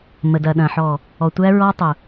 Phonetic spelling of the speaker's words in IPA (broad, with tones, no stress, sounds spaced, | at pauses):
m ə˨ d ɐ˨ ɗ ɐ̃˨ ħ ɔ˨ | ɔ˨ tʷ æ˦ ɹ ɔ˦ tˤ ʊ˨